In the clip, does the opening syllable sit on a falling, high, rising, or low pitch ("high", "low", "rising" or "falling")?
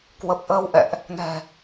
low